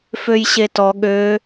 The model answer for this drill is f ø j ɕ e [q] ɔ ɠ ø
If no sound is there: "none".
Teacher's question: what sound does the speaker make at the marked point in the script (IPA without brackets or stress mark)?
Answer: t